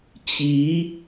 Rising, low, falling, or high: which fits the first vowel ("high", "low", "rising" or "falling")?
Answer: rising